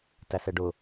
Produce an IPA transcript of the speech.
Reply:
t æ s ɛ ɖ ʊ

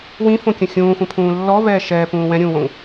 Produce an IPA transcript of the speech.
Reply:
w ĩ f õ kʲ ə̃ xʲ ũː xʷ ə̃ pʰ ũː lː ɔ v ɛː ʃ ɛː p ũː w ɛ̃ ɾʲ ũː w õ ŋ

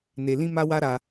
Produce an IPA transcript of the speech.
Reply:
n e˧ l ĩ˦ m a˦ w a˦ ɾ a˧

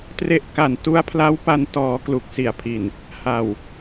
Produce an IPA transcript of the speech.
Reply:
t r e˦˥ ʔ k a˨˩ n t u˦˥ a̯ pʰ l a˦˥ w p a˧ n t ɔː˩˦ k l u˨˩ k̚ s i˩˦ a̯ pʰ i˨˩ n | h a˨˩ w

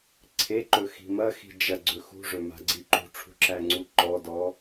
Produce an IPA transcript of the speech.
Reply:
ǀʰ e ǃ ɵ x i̤ m ɐ x i̤ d͡ʒ ɐ ɡ͡ǀ ɵ x ṳ ʐ ɵ m a̤ ɡ͡ǀ i ǃ ṳ ʈ͡ʂʰ ṳ ǁ æ ŋ͡ǀ u ǃ ɔ d ɔ

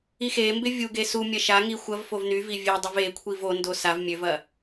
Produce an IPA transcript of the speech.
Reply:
i x e m b ɪ vʲ u ɡ e s u mʲ ɐ ʃ a ŋ i xʷ ɐ v f o v n y v i vʲ e dˤ ɪ v e kʷʰ i v o n d o s a v mʲ ø v ɐ

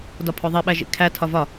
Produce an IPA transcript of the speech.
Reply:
d ɒ pʰ o ðˤ i ɓ æ ʒ ḭ kʰ æ tʰ ɒ v ɒ

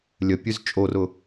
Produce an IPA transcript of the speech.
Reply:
lʲ ə pʲ ʉ z t͡ʃʼ o r ʊ

